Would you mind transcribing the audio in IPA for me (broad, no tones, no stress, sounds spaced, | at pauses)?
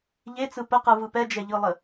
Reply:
ʎ e t͡s ɯ p ə q ɯ v ɯ p ɛ d͡ʒ ɛ ʎ ɯ lˠ ə